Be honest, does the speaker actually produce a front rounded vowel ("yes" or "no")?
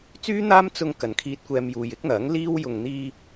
yes